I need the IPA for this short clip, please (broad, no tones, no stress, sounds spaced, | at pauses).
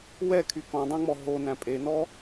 w ɛ kʰ y k ɔ̃ dˤ æ̃ ŋ͡m ɔ ɦ o n æ̃ pʼ e n ɔ